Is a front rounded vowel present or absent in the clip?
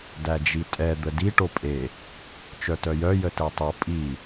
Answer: present